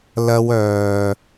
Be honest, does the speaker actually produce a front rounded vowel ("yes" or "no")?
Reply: yes